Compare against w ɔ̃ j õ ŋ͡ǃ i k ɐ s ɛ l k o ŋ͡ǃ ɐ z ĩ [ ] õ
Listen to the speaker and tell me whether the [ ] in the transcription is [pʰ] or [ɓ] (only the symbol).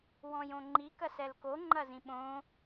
ɓ